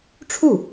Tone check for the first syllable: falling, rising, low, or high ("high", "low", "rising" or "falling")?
falling